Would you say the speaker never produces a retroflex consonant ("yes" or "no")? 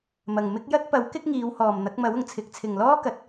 yes